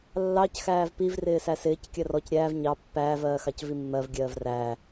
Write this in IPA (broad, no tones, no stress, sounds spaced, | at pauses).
lː ɑ c x æː v p i v r ɪː s æ s ɪː c kʲ ɜ r ɔ c ɾʲ æː v ɲ ɑ pː æː v ɜː x ɑ c v i mː ɜ v ɡʲ ɜː v r æː